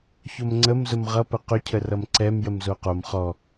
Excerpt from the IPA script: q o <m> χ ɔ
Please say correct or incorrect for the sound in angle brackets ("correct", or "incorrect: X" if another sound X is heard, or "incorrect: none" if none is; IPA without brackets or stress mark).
correct